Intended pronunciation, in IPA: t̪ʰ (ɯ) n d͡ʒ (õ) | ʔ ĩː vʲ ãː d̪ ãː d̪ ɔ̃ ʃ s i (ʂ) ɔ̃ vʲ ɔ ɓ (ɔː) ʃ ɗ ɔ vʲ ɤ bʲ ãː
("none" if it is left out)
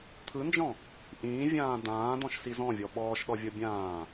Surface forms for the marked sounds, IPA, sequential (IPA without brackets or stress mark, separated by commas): ɯ, ɔ̃, z, ɔː